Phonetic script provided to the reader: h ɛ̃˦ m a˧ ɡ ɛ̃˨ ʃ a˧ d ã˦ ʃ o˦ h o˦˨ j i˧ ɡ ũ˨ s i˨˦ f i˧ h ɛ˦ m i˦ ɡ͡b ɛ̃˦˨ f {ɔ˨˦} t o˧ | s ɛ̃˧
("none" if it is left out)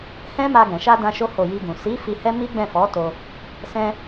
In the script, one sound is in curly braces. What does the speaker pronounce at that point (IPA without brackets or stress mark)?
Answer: ɔ˨˦